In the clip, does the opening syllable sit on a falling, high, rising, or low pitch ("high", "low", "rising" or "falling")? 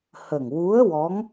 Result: low